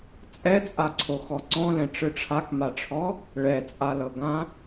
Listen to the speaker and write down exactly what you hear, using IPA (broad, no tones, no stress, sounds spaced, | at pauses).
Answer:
t͡sʼ ɛ t͡sʼ a ǀʰ o x ɔ ǀ ɔ̃ l ɛ̃ ʈ͡ʂ ɯ ʈ͡ʂʰ a k m a ʈ͡ʂʰ ɔ | ɭ ɛ t͡sʼ a l ɤ ɡ ã